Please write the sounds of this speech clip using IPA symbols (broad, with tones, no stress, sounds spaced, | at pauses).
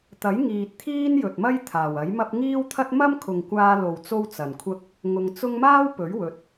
t̪ ɐ˨˥ j ŋ iː˨ t̚ t̪ʰ iː˥ n j ɵ˨ t̚ m ɐ˥ j t̪ʰ aː˨˩ w ɐ˨˥ j m ɐ˥ p̚ ŋ iː˥ w t̪ʰ ɐ˥ t̚ m ɐ˥ m kʰ ʊ˨ ŋ kʷ aː˧ l o˨ w t͡s o˥ w t͡s ɐ˨ n kʷʰ ɐ˥ k̚ | ŋ ʊ˧ ŋ t͡s ʊ˥ ŋ m aː˥ w p ɵ˨˥ ɥ w ɵ˨˥ t̚